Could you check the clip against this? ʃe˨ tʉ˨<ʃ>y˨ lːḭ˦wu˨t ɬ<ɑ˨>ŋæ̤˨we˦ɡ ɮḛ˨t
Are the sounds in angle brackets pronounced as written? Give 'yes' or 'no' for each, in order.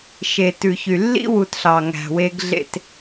no, yes

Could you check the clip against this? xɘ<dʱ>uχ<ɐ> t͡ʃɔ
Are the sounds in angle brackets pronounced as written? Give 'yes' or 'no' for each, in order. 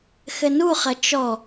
no, yes

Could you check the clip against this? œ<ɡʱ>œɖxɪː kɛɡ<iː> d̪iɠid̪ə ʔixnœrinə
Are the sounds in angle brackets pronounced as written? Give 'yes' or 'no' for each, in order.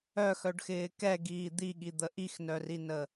no, yes

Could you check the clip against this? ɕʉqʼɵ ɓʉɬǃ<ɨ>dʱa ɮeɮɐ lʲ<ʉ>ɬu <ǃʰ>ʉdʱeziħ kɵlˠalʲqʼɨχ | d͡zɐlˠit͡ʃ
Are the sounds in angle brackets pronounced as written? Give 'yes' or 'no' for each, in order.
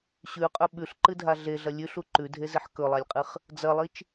yes, yes, no

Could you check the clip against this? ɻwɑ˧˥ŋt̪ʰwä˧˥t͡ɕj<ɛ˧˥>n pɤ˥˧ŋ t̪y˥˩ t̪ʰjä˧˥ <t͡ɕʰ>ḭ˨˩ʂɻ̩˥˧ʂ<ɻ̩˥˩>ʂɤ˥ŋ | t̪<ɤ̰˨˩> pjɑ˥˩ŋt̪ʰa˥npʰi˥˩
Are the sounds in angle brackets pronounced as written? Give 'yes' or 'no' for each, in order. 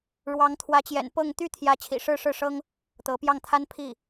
no, yes, yes, no

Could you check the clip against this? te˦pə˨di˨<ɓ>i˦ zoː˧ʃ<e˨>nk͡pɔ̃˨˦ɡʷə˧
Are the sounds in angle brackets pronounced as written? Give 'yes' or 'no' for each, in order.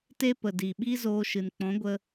yes, no

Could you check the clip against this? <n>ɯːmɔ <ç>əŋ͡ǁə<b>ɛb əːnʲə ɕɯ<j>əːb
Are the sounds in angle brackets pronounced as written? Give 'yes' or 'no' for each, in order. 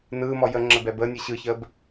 yes, no, yes, no

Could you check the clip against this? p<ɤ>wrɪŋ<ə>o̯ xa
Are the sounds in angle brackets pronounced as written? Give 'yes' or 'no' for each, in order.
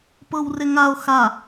yes, no

